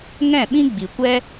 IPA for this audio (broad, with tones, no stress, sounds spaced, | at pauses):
ŋ ɛ̃˦˨ ɓ ĩ˦ ɡ͡b i˨ kʷ ɛ˦